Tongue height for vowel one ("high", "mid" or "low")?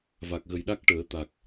low